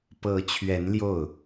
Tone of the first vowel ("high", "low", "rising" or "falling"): rising